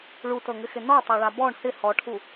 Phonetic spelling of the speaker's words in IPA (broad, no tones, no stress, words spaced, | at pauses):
ɭutɤŋɪxɪ nɔtˤaɭa bɔɳ hɪ hɔʈʰu